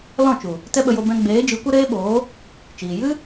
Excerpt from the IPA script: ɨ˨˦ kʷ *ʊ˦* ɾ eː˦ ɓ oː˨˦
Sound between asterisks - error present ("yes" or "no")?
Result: yes